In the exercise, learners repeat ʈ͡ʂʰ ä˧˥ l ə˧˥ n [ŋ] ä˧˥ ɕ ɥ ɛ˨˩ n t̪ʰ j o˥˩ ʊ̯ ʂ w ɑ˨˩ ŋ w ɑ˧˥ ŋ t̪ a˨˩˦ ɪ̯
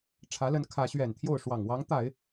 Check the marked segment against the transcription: incorrect: kʰ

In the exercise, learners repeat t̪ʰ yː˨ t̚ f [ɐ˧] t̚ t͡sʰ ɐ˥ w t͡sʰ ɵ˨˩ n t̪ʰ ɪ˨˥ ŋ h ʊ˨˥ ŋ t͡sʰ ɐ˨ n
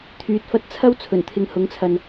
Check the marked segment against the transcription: correct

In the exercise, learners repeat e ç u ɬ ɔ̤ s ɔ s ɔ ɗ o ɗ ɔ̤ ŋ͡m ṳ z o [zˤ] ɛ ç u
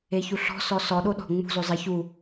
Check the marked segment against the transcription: correct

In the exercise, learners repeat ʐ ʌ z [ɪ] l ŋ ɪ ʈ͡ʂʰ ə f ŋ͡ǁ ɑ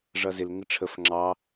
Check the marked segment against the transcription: correct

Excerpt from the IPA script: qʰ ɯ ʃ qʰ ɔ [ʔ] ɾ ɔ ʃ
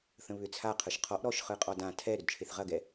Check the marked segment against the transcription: correct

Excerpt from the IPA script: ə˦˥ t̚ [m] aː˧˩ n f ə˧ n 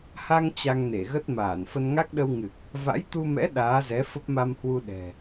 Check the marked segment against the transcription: correct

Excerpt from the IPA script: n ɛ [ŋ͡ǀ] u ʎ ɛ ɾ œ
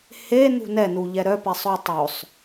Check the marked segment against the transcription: incorrect: n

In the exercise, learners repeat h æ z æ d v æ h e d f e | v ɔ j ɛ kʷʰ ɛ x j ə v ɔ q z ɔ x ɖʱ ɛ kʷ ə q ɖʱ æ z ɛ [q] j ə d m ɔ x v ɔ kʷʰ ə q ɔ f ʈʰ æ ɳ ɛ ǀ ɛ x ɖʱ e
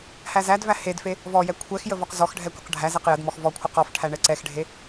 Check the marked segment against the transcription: correct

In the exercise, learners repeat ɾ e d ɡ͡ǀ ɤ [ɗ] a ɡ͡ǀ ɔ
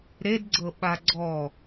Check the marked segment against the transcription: incorrect: ɓ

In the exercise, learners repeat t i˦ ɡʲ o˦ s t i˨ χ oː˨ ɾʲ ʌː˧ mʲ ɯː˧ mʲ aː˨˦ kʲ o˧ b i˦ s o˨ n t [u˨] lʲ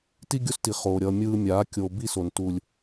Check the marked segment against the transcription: correct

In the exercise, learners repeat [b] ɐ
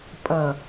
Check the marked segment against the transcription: incorrect: pʼ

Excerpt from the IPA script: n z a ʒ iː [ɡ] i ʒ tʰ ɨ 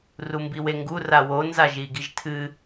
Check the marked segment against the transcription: correct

